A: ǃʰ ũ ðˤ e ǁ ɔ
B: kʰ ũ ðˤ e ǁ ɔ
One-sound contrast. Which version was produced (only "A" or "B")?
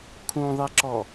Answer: B